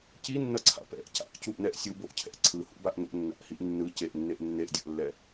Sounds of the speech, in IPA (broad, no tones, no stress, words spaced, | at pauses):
cinːʌǀʰa̰ pɛ̰ʔ ca̰ʔcuʔnɛʔ sʲuboʔcʰɛ̰ ǀʰɯhṵbaʔ no̰nːa̰ʔhiʔ nːɯ ceʔnːeʔ nːeʔdʲʌʔlːɛ